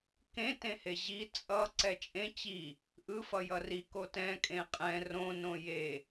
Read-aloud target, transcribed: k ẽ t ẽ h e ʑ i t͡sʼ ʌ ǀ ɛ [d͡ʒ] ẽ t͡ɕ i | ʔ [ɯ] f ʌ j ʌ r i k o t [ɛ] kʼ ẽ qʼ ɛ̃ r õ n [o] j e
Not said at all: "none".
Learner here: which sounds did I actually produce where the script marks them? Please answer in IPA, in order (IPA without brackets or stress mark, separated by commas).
t͡ʃʼ, ɯ, ɛ̃, õ